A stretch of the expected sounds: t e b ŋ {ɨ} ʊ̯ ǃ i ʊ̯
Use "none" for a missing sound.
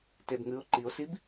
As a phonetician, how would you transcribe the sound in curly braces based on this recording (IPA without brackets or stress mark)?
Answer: ɨ